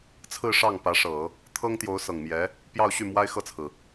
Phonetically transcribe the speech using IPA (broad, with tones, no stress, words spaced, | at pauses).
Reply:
t͡sʰɹ̩˥˧ʂɑ˥˩ŋ pä˧˥ ʂɤ˨˩˦ | t̪ʰɤ˥ŋt̪jo˧˥ʊ̯ sɤ˨˩ŋmjɛ˧˥ | pjɑ˥˧ʊ̯ɕy˥˩ mwa˥ɪ̯xɤ˥˩t͡sʰɹ̩˩